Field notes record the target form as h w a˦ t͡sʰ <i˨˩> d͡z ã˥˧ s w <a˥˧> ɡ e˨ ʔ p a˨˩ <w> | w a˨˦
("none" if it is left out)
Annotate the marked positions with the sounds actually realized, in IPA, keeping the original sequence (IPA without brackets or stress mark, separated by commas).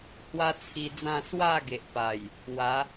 i˧, a˥˧, j